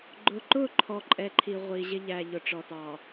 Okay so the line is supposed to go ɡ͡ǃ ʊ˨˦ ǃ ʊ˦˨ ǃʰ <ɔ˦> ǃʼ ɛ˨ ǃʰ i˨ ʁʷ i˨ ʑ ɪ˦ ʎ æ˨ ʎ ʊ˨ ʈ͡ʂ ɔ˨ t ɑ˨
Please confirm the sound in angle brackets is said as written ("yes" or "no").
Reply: no